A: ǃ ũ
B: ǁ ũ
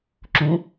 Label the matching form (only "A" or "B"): B